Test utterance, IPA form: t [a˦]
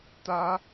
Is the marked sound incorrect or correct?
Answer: correct